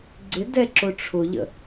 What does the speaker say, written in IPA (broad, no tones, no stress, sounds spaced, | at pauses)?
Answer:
ɡ͡ǀ ɪ d ɛ ǁ ʊ ʈ͡ʂʰ ʊ ʎ ə̰